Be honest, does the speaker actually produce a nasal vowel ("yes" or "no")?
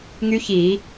no